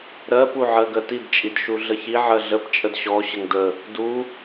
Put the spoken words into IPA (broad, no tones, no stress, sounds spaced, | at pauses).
ɾ ɜ p u ʕ ɜ ɡ ɜ t i d t͡ʃʼ i d ʃ u ɮ ə ç i ʕ ɜ ɮ ə p t͡ʃʼ ə d ɕ ɔ ɕ ə ŋ d ə | d u